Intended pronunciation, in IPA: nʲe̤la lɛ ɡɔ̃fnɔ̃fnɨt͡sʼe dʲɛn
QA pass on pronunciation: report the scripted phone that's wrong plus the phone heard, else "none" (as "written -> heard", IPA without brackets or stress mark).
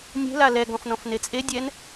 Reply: ɨ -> e